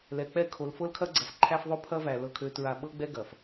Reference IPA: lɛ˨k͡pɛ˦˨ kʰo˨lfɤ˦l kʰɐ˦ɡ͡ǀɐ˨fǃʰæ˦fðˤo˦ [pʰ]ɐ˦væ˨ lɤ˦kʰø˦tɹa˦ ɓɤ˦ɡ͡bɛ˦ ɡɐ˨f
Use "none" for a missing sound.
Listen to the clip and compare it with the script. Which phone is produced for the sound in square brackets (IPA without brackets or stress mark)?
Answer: pʰ